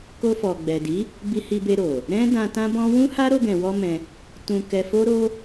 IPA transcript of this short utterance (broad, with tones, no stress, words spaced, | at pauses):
ko˧fɔ˨ɡ͡bɛ˨di˨˦ | bi˧hi˧be˧ ɾo˨ | ɾɛ̃˦ dã˧ tã˦bɔ̃˦ wũ˦ha˦ ɾo˧ɡɛ̃˨wɔ˧ mɛ̃˧ | tũ˧kɛ˧ fo˦ɾo˦